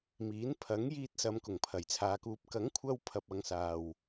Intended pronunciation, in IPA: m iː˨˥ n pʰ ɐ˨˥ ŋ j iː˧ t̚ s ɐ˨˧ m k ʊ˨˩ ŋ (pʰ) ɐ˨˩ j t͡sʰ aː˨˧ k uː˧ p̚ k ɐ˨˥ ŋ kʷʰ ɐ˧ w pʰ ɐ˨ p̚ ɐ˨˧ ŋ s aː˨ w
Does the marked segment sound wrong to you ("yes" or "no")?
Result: no